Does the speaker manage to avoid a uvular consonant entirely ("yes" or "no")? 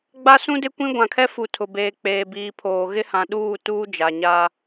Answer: yes